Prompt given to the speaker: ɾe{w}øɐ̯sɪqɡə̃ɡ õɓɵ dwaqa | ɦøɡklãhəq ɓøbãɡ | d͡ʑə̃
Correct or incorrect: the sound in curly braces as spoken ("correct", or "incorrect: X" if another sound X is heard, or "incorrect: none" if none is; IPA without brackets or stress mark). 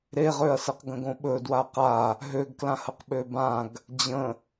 incorrect: ʁ